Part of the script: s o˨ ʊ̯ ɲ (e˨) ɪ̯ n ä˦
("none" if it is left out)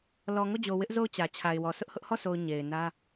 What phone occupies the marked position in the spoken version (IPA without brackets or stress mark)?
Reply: e˨